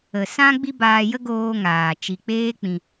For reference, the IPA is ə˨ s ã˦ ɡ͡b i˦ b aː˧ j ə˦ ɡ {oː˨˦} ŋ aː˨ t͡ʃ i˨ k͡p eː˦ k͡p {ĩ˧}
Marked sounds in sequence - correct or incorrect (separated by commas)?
incorrect, correct